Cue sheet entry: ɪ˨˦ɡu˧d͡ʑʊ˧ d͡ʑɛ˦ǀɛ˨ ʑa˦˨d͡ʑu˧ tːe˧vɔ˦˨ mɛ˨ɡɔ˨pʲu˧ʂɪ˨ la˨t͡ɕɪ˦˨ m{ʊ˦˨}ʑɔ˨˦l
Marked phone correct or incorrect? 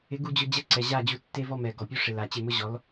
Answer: incorrect